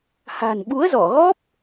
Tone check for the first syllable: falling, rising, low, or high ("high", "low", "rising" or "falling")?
low